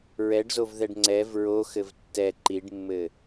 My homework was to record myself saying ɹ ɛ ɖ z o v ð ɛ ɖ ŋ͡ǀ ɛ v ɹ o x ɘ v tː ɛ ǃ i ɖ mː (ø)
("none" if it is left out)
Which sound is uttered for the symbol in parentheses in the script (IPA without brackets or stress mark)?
ɘ